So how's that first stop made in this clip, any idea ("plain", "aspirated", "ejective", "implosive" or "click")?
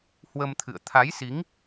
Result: aspirated